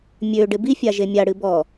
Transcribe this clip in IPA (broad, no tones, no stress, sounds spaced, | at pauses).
mʲ ø ɖ ɪ b i fʲ a ʒ e mʲ a ɽ ɨ b ɔ